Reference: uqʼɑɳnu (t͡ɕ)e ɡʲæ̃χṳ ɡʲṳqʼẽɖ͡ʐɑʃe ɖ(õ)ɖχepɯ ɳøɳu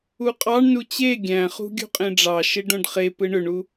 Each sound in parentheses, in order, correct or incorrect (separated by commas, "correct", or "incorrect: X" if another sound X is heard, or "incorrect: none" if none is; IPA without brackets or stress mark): correct, correct